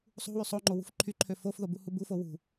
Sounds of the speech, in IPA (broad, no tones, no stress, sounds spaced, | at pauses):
sˤ ṳ w y sˤ o ŋ͡ǃ o w ṳ f ǃʰ y ǃʰ ø f o f ð o b u h u b u f o w ṳ